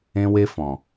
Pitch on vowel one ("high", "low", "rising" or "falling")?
high